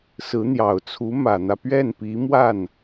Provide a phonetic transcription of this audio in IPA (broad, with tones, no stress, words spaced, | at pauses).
sɹ̩˧˥n̪jɑ˨˩ʊ̯t͡sʰu˧˥ mä˨˩n̪ä˦pɥɛ˥˩npi˧˥ mwa˥˩n